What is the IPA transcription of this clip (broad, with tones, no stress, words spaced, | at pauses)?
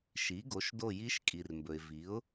ʃi˩˥ɡo˩˥ʃdo˦˨ji˦˥ʃ kʼi˩rmbɵ˩ɪ̯vi˩˥ʊ̯